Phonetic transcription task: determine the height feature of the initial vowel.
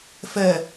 mid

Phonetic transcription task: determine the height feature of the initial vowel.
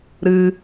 high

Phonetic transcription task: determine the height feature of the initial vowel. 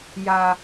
low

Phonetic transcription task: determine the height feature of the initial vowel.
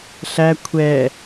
low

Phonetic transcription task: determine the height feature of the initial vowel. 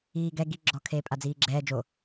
high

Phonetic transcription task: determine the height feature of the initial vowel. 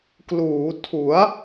high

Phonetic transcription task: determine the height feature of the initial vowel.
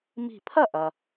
high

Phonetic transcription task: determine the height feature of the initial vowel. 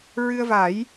high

